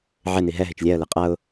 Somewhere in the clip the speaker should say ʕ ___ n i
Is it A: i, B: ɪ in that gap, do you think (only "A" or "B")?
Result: B